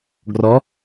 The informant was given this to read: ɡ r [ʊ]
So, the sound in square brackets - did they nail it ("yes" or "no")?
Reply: no